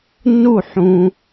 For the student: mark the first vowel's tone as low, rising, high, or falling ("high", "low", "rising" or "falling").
falling